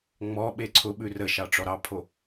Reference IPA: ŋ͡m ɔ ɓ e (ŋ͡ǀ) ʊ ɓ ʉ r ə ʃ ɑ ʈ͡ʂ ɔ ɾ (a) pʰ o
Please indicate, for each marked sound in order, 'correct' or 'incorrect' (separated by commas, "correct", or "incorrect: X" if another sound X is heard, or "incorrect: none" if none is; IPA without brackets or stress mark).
incorrect: ǀʰ, incorrect: ɑ